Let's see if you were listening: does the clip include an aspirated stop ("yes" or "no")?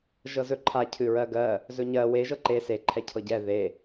yes